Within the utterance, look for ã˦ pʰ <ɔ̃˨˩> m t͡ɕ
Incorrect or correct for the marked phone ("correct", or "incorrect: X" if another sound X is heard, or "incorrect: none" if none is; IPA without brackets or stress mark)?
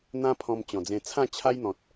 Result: incorrect: ɔ̃˧